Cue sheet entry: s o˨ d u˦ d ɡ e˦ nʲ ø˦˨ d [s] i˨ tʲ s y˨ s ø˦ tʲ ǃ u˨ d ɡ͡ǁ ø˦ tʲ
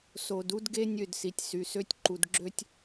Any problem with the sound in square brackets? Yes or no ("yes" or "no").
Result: no